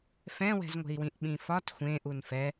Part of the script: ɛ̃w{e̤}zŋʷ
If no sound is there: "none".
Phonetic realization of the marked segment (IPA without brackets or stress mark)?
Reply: ɛ̤